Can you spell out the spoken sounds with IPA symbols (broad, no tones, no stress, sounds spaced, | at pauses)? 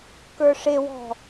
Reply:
k ə˞ ʂ e w ɔ̤